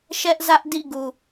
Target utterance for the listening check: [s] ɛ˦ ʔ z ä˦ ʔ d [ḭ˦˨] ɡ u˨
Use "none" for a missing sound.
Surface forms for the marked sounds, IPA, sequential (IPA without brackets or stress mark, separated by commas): ʃ, ḭ˦˨